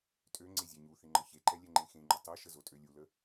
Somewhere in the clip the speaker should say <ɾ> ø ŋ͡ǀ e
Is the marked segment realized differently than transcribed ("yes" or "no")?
yes